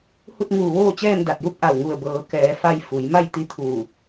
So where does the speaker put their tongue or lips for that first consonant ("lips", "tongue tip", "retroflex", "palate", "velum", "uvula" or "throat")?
throat